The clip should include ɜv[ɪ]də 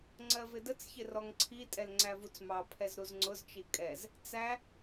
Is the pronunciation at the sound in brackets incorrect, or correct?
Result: correct